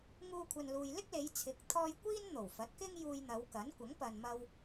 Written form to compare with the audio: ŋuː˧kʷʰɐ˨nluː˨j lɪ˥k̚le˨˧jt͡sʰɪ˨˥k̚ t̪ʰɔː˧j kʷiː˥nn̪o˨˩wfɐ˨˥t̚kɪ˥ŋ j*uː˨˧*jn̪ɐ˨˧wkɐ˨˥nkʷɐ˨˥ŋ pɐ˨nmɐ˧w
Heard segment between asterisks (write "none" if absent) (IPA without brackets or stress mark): uː˧